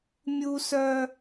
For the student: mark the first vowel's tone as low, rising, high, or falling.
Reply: high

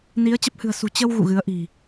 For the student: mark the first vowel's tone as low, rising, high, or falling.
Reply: rising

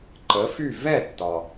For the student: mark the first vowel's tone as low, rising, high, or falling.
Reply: rising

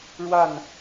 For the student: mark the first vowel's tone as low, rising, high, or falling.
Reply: falling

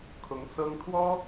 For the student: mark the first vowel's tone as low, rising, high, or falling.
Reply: rising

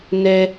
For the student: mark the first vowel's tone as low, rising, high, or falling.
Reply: high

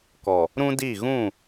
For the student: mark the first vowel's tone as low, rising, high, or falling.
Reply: low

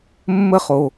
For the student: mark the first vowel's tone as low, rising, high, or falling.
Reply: high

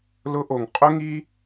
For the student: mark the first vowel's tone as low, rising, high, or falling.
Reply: high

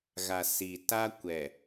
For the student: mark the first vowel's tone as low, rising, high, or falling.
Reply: low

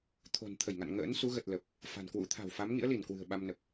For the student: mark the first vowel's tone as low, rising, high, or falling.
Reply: low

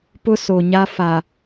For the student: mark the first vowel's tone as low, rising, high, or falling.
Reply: high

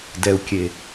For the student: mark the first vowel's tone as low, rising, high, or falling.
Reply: low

